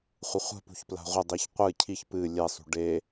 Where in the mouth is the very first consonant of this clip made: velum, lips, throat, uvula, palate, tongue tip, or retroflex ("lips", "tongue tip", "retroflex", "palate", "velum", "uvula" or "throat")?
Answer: uvula